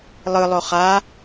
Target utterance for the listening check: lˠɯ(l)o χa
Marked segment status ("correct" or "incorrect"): incorrect